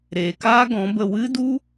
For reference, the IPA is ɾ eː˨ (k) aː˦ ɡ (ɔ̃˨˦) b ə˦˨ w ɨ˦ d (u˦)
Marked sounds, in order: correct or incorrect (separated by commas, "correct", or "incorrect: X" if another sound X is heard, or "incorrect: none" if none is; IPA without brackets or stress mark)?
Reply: correct, correct, correct